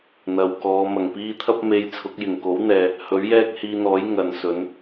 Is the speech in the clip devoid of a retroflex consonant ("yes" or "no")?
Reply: yes